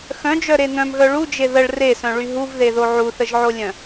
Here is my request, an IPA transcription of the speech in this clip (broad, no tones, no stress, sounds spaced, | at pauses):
x œ̃ d͡ʒ œ ɾ e n̪ œ̃ m ɣ œ ɭ u d͡ʒ e ð ə ɭ r e s œ̃ ɭ y ɦ u v ð e ð o ʕ u θ ə ʒ ʕ o lʲ œ̃